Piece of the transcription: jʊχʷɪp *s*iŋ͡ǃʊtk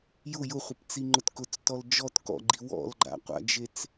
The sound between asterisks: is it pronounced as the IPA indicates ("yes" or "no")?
no